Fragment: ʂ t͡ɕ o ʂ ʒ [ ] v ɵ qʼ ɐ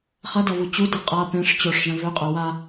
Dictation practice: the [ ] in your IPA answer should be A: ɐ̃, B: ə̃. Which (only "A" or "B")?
A